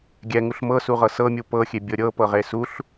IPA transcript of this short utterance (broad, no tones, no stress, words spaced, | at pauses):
ɡʲɛŋuɬ mɤsuʁɤ sɤmʲu pɤxʲebʲɤ ɾʲɤpɤʁe suɬ